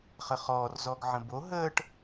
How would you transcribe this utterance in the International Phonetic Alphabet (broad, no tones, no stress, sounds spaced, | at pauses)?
χ ə χ ɔː r z ɔ ɡ ʕ ə̃ b o ɦ əː ʈ